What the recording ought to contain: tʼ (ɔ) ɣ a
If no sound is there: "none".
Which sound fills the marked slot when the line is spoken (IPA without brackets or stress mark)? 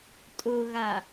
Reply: ʊ